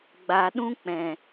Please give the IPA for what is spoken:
ɡ͡b a˨ ɗ ũ˦ k͡p ɛ̃˨

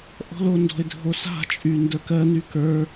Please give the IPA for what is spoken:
ʔ ɔ̤ l o n d ɔ̤ ɪ̯ dʱ o s a̤ t͡ʃʼ y n d ə˞ k ɜ n y k ə˞

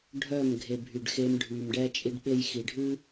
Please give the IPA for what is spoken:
ɖʱ œ˦˨ m ɡʱ e˨ bʱ y˨ ɖ x e˧ m ɖʱ y˨ m ɖ ɛ˦ t͡ʃʼ i˦ ɖ ɓ e˦ j x i˨ ɖʱ ʉ˦

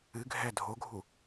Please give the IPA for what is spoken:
ɨ ɡʱ ɛ dʱ o ɡʱ u

